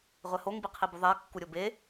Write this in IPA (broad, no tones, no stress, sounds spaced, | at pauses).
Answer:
ʁʷ ɛ h o ŋ b i qʰ i b u ðˤ ɛ ɐ̯ kː u ɾʲ o b e